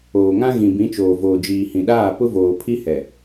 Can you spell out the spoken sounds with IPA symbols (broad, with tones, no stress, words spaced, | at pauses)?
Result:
oː˨ŋã˦ ɣĩ˨bĩ˨˦t͡ʃoː˨ voː˨d͡ʒiː˨hĩ˨ɗaː˦˨ pʊ˦voː˨pʰi˦hɛ˨